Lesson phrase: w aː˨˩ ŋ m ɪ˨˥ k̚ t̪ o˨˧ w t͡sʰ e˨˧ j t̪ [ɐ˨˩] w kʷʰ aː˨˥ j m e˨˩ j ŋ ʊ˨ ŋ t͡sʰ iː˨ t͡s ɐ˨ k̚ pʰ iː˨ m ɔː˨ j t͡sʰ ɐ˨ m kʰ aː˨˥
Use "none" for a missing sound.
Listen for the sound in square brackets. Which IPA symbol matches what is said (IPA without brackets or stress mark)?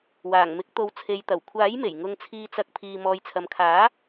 ɐ˨˩